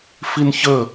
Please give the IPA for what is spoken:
f i n ç ə

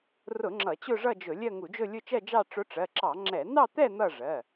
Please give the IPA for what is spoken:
r ʊ˧˩˧ ŋ͡ǁ ʌ˧˩˧ t͡ɕ ʊ˥˧ ʐ ʌ˥˧ d͡ʒ ʊ˧˩˧ lʲ ɜ˥˧ ŋ u˧˩˧ d͡ʒ ʊ˥˧ lʲ ʊ˥˧ t͡ʃ ɜ˥˧ d͡ʒ ɑ˥˧ ʈ͡ʂ ʊ˧˥ ʈ͡ʂ ɜ˩˧˩ ǁ ɑ˧˩˧ ŋ͡ǁ ɛ˧˩˧ n ɑ˥˧ t̪ ɛ˥˧ n̪ ʌ˥˧ ʐ ɜ˩˧˩

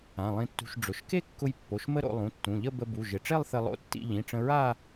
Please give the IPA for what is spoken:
ã˩˧˩ lˠ ĩ˧ tː ṳ˧ ʃ ɖ͡ʐ ʊ˩˧˩ ʃ k e˥˧ kː ʊ˧ j pː o˩˧˩ ʃ m ə˥˧ ɾ o̰˧ lˠ ũ˩˧˩ tː ũ˩˧˩ ʎ ə˥˧ b ə˧ b u˩˧˩ ʒ ɪ˩˧˩ ʈ͡ʂ e˥˧ lˠ θ ɪ˧ lˠ o̰˧ tː ḭ˧ ʎ ĩ˩˧˩ ʈ͡ʂ ə̃˧ ɹ a˥˧

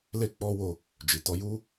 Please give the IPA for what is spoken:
l e˦ k͡p ɔ˦ w o˧ | d͡ʒ i˨ t ɔ˧ j u˦

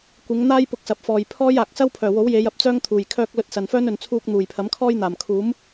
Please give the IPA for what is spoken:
kʷ ɪ˨˧ ŋ n̪ aː˥ j p ʊ˧ k̚ s ɐ˨˥ p̚ f ɔː˨ j pʰ ɔː˥ j aː˨ k̚ s ɐ˥ w pʰ œː˨˩ w o˨˥ w j e˨˧ j ɐ˨ p̚ t͡s œː˥ ŋ t̪ʰ uː˨ j kʰ œː˧ k̚ l ɵ˧ t̚ s ɐ˨ n f œː˥ n ɵ˨ n t͡sʰ uː˧ k̚ n̪ uː˨˩ j pʰ ɐ˨˥ m kʰ ɔː˥ j n̪ aː˨˩ m kʰ uː˨˥ m

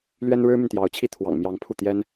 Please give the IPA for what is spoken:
l ɥ ɛ˥ n ɻ ɻ̩˥ m y˨ n t̪ j ɑ˧˥ ʊ̯ t͡ɕʰ i˥˩ t̪ʰ w ɑ̰˨˩ ŋ m j ɑ˧˥ ŋ pʰ u˥˩ t̪ j ɛ˥ n

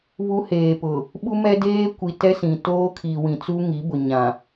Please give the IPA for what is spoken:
β u˦ h eː˨ p ʊ˨ | ɓ u˦ m ɛ˦ d eː˦ kʷ i˨ t ɛ˦ s ĩ˨ t oː˦ kʰ i˨ w ĩ˨ t͡s u˦ ŋ i˨˦ b ʊ˨ ɲ ã˨

